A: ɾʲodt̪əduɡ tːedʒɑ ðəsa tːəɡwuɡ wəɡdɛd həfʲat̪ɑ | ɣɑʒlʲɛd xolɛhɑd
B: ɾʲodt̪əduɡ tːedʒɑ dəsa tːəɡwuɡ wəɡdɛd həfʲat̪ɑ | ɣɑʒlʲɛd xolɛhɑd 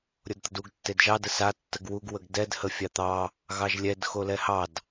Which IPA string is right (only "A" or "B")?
B